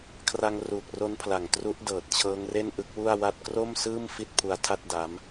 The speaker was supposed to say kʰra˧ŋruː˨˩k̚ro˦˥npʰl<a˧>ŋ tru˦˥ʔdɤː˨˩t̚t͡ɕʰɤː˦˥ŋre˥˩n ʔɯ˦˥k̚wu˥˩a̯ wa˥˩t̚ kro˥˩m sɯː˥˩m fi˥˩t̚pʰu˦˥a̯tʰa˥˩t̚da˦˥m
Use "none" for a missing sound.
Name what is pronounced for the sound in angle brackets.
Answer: a˨˩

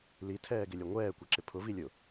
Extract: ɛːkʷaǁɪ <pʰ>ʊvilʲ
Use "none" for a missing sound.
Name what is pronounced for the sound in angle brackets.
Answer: pʰ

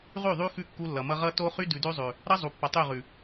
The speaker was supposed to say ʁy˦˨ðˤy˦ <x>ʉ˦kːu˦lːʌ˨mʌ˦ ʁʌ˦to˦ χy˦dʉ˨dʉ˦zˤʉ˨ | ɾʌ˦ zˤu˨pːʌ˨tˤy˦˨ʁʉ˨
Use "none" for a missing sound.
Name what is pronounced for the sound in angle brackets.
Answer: x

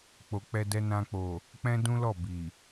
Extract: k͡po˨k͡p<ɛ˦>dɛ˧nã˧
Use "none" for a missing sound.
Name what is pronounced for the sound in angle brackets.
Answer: ɛ˧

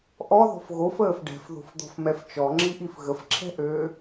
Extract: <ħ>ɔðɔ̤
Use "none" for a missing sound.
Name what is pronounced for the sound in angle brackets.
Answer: ʔ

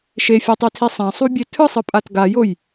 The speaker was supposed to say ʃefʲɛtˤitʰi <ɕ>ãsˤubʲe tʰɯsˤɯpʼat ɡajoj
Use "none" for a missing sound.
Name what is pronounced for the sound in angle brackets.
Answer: sˤ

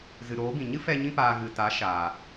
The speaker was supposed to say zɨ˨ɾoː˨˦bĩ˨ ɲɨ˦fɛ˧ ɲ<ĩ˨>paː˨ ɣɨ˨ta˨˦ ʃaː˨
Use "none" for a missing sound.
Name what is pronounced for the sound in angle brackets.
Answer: ĩ˧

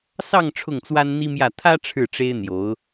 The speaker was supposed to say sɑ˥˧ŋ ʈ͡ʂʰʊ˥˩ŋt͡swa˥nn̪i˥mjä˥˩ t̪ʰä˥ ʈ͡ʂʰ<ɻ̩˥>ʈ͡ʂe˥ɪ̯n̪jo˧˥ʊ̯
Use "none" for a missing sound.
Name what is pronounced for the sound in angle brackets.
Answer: ɻ̩˥˩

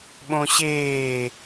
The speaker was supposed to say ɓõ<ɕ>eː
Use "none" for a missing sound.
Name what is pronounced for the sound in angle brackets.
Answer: ɕ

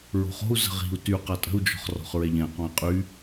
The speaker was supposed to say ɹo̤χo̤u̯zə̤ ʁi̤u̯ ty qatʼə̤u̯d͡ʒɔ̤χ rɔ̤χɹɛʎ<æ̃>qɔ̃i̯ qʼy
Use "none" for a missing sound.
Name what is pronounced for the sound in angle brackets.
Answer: ɛ̃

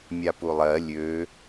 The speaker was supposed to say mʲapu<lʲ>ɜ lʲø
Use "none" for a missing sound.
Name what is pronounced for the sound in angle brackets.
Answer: lˠ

